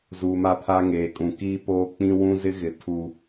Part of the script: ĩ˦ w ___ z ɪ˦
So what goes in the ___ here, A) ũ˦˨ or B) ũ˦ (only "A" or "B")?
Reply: B